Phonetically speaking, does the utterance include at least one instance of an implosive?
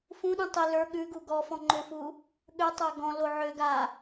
yes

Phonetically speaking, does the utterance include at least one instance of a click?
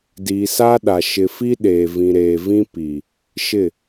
no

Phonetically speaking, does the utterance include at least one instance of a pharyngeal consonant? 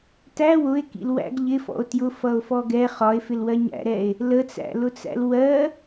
no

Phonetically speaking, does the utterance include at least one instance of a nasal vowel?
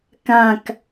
yes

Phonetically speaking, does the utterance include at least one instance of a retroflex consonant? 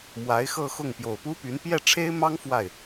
yes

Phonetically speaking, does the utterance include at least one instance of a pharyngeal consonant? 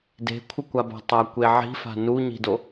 yes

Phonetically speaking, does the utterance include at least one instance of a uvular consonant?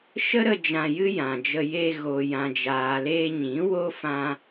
no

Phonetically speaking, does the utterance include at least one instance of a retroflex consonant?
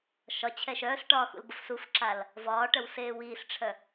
yes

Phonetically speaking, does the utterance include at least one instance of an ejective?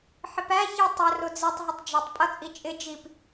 yes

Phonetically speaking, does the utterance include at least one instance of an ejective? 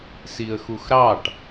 no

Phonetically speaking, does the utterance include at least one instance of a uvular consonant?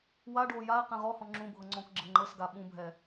yes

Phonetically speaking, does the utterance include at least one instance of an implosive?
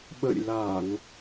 yes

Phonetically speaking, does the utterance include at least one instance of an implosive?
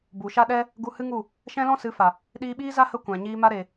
yes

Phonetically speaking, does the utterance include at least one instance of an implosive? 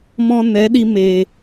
yes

